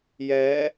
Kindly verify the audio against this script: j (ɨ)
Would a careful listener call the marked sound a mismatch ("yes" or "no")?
yes